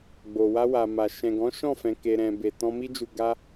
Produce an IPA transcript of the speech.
ɡ͡b o˨ w a˧ w a˨ m a˨ ʃ ɛ̃˨ ɡ ɔ̃˨˦ ʃ ɔ̃˦˨ f ɛ̃˨ k e˨ ɾ ɛ̃˨ b e˨ t ɔ̃˧ m i˦ d͡ʒ u˧ ɡ a˦

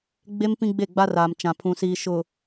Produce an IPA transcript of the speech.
ɡ͡b e˦ m p ĩ˦ ɡ͡b e˦˨ ɡ͡b a˦ r aː˨ m t͡ʃ ã˨ pʰ ũ˨ s iː˨ ʃ ʊ˨

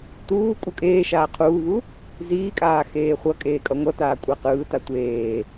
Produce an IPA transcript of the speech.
t uː kʼ u kʼ eː ʃ aː qʰ uː β u | z iː kʼ aː x eː χʷ ʌ kʼ eː kʼ ʌ ŋʷ ʌ t aː kʷʼ ɛ q ɯː t a tʷ eː

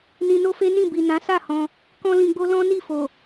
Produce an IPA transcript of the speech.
n ĩ˧ n o˦ f e˦ n ĩ˦˨ b i˨ n ã˨˦ s a˦˨ h ɔ̃˧ | k ɔ̃˦ l ĩ˧ ɡ͡b o˦ l ɔ̃˦ n i˦˨ f o˨

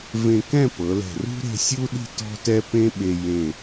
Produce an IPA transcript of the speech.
v ẽ˧ k ɛ̃˥˧ p ɤ˩˧ l ɛ̤˧˩ r ṳ˥ ɾ e̤˥˧ sʲ u˥ ɗ i̤˥˧ t ɔ̤˥ t ɛ˥ p ẽ˥ ɓ e˧ j ẽ˧˩

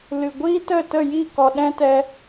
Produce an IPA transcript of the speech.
l ɨ˨ ɡʷ iː˦ t ə˦˨ t ə˦˨ j i˦˨ k ɔ˨ ɗ ɛ̃˦ t ɛ˧

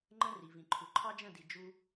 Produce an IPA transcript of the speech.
ŋ͡ǃ ə̃˦ r i˨ v ĩ˨ ǃʰ u˨ ǃʰ ɑ˦ d͡ʒ ə̃˦˨ d i˨ d͡ʒ u˧

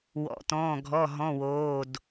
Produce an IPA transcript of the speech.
w ɔ̰˩˧˩ t ɔ̃ː˩˧˩ ɡʱ ɔ˩˧˩ ɦ ɔ̃˩˧˩ w oː˩˧˩ d

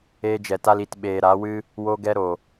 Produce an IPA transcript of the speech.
eː˧ d͡ʒ ɛ˨ t a˧ l i˨ t ɓ eː˨ ɾ a˨˦ w ɨ˦ | w o˧ ɡ ɛ˧ ɾ o˨

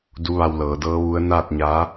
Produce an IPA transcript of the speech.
d u˧˥ ʋ a˧ w l ɤː˩˧ d ɤː˧˥ ʋ u˧˥ ə̯ n aː˥˨ t̚ ɲ aː˧˥

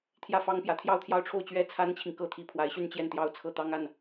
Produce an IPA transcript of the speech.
t̪ʰ j ä˥˩ f ɑ˥ ŋ p j ä˧˥ t̪ʰ j ɑ˥˧ ʊ̯ t̪ʰ j ɑ˥˧ ʊ̯ ʈ͡ʂʰ o˥˧ ʊ̯ t͡ɕ ɥ ɛ˥˩ t͡sʰ a˥ n t͡ɕʰ i˨ ŋ k ɤ˥ t̪ʰ i˧˥ pʰ w a˧˥ ɪ̯ ɕ y˥˧ n t͡ɕ j ɛ˥˩ n t̪ j ɑ˥ ʊ̯ t͡sʰ ɤ˥˩ t̪ ɑ˥ ŋ a˥˩ n

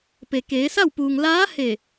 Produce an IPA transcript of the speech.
p e˩ k eː˩˧ s a˥˨ w p uː˩ ŋ l aː˧˥ h e˧˩

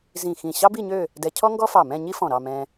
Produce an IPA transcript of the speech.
z ĩ˧˩ x ĩ˧˩ ɕ ɑ˥ b i˥˧ ɲ ø˥˧ | d ɛ˧ cʰ ɔ˥ ŋ ɡ ɔ˥ f ɑ˧˩ m ɛ̃˥˧ ɲ i˥ f ɔ̃˧˩ ɾ ɑ˥˧ m ɛ̃˧

